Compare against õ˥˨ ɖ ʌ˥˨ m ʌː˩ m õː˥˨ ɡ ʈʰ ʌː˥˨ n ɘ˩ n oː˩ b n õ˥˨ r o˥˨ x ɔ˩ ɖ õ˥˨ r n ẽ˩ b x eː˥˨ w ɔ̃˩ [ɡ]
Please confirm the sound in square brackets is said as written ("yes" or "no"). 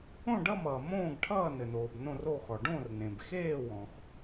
no